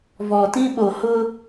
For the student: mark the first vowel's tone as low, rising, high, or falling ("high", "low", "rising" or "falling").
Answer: low